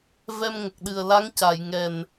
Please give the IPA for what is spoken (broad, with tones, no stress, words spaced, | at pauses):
vɛ˧mŋə˨˩k̚ɗɨ˨˩ə̯la˧˥ŋ ca˨˩˨jŋɛ˨˩n